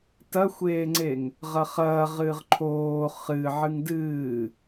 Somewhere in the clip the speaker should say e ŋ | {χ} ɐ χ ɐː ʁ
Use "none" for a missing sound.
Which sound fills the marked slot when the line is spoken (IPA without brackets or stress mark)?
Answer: ʁ